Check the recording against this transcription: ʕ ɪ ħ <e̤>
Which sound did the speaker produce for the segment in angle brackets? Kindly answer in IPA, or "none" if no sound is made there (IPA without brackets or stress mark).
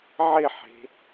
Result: e̤